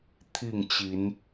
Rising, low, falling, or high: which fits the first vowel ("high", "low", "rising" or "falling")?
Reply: falling